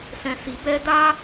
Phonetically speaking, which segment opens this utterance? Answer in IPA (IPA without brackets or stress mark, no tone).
s